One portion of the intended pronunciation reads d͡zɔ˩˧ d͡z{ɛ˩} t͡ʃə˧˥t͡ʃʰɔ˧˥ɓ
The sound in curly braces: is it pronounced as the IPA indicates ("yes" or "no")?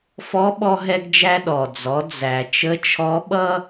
no